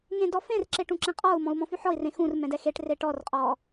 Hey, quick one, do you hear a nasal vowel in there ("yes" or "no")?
yes